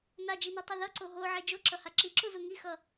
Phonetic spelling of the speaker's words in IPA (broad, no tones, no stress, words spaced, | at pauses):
nad͡ʒinutˤo ðʌǀo ɦoʕe d͡ʒoǁʌha ǁiǁuzu ŋixʌ